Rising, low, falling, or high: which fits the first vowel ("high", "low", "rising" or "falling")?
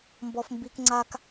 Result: high